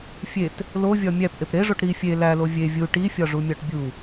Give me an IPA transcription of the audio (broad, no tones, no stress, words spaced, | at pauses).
fʲet | lovʲɒ mʲæpʔep ɾeʐoʈ ɾi fʲe lælo vʲe vʲu ʈifʲɒʐumʲɒʈ bʲu